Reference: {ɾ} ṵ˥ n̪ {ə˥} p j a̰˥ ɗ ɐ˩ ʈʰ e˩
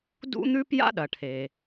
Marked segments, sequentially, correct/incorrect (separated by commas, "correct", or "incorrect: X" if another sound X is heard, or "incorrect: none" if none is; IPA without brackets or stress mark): incorrect: d, incorrect: ʉ˥